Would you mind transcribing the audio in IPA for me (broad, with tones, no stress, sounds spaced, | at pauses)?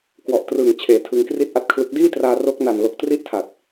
k w ɔ˨˩ ʔ t r ɯː˨˩ ŋ t͡ɕʰ eː˩˦ tʰ ɯ˧ ŋ k r i˥˩ t̚ ʔ a˥˩ t̚ kʰ l ɯ˦˥ k̚ d iː˥˩ t r aː˧ r o˦˥ k̚ n a˨˩ n l o˨˩ k̚ t r i˥˩ ʔ tʰ a˨˩ t̚